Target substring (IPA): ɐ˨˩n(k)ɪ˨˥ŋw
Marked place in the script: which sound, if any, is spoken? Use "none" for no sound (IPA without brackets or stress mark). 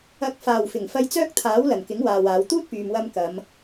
k